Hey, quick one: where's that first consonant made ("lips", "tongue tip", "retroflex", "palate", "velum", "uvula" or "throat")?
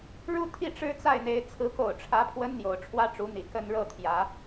retroflex